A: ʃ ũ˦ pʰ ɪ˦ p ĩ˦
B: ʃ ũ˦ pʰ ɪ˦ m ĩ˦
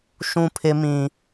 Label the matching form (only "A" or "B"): B